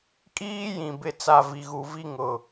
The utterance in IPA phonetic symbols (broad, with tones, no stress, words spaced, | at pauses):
kʼiː˦jĩ˨ bɪ˦t͡sa˦˨ vi˨ɣu˨ vi˦ŋʊ˨